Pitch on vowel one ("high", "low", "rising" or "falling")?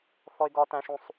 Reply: high